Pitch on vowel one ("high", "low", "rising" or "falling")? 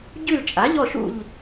falling